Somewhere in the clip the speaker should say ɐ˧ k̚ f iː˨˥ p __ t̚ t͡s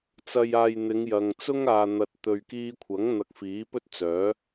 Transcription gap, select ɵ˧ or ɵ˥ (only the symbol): ɵ˥